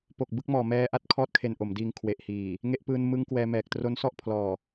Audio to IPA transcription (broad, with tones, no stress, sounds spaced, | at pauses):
p o˨˩ k̚ b ɯ˥˩ k̚ m ɔː˨˩ m ɛː˧ ʔ a˦˥ t̚ kʰ ɔː˥˩ t̚ kʰ e˧ n ʔ o˩˦ m d iː˧ ŋ kʰ w e˨˩ ʔ h iː˨˩ | ŋ e˦˥ ʔ p ɯː˧ n m ɯ˦˥ ŋ k w ɛː˧ m ɛː˨˩ k̚ t r o˦˥ n s ɔ˥˩ ʔ pʰ l ɔː˨˩